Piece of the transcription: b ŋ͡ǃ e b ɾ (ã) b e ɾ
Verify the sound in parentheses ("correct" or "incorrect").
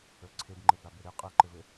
incorrect